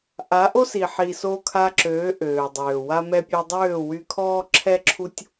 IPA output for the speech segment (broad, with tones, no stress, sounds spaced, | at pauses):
ʔ a˨˦ ʔ o˦ s i˨ ħ i˨ s o˧ kʰ a˧ ǁ øː˨˦ ʔ øː˨ dˤ øː˨ w a˧ m ɛ˧ pʲ œ˧ dˤ øː˦˨ w y˧ kʰ ɔː˦ ǁʰ ɛ˦ ǁʰ u˦ tʲ